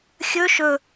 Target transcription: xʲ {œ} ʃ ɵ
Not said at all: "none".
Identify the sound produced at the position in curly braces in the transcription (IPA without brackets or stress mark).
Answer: ɵ